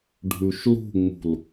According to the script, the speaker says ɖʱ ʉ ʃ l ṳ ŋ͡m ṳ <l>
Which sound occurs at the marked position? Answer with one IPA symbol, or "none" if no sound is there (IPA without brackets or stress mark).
l